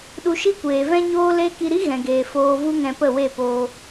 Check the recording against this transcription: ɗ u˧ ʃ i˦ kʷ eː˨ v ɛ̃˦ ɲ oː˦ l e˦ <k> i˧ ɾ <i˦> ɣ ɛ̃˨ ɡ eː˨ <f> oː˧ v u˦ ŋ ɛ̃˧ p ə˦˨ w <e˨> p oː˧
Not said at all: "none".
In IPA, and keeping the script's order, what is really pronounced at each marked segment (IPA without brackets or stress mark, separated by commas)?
k, i˦, f, e˦˨